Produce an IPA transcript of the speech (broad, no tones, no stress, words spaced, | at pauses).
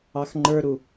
ɑxŋ͡ǃə˞ɾu